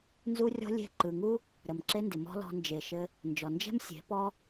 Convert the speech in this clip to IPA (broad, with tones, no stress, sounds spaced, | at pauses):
n z u˦ rʲ ɔ̤˦ lʲ e̤˦˨ ǃ ɯ˨ ŋ u˦ | ɾ ə˨ m ǁ e˦ n d ɪ˨ m ɔ̤˦ l ɔ̤˧ n d͡ʒ e˨ ʃ ɘ˧ | n d͡ʒ ɔ˨ n d͡ʒ ɛ̤˦ m sʲ e̤˨˦ p ɔ˦